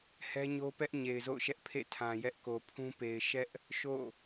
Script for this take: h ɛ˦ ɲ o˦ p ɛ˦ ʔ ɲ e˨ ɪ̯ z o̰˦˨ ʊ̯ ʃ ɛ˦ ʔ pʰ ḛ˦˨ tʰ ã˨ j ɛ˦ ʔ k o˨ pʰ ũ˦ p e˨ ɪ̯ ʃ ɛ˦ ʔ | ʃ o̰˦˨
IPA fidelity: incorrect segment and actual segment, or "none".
none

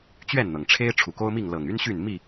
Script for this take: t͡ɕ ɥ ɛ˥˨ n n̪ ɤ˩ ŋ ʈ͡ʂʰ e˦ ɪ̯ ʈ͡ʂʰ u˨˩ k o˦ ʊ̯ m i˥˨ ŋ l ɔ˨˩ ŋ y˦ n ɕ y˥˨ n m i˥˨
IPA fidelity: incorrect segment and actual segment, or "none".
ɔ˨˩ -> ɤ˨˩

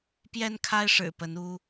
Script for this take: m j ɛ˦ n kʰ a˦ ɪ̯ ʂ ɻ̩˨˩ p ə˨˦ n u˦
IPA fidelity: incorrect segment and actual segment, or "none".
m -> p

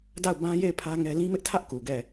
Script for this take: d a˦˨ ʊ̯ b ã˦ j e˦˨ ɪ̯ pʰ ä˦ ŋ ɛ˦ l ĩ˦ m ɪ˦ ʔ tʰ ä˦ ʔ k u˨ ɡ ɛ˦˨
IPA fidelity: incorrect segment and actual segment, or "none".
none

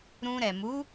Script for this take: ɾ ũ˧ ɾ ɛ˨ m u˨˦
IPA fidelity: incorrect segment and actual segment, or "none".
none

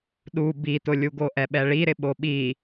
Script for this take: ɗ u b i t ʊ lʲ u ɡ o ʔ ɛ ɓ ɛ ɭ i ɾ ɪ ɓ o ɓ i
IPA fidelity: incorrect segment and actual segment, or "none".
none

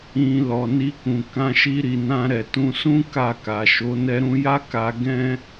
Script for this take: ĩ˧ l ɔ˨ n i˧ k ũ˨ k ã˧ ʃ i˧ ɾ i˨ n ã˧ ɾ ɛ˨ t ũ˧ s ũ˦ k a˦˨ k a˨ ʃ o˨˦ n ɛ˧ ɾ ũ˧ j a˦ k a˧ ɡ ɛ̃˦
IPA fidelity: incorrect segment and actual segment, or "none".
none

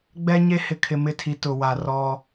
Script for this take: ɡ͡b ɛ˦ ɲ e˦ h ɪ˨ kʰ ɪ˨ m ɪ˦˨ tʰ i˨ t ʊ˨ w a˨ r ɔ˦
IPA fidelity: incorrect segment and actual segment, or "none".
none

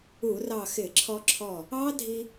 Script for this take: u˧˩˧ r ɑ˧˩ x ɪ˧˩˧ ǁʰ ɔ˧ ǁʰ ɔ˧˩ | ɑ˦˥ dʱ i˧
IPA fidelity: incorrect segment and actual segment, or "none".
none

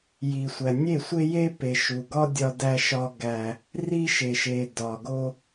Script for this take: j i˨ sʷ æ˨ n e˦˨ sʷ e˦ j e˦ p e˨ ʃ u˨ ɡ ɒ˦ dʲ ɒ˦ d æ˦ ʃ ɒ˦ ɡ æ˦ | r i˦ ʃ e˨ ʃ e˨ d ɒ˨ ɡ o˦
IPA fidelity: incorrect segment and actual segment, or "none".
n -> nʲ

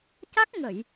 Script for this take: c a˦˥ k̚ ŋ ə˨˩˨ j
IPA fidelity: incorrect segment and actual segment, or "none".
none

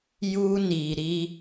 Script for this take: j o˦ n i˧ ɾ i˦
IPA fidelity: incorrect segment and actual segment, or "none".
o˦ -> u˦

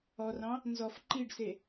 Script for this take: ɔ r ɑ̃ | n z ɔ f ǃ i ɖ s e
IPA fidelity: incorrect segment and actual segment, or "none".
none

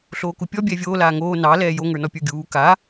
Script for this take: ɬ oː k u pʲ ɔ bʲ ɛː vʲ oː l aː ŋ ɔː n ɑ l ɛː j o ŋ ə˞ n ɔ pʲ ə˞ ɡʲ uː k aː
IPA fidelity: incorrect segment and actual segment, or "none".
ɔː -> oː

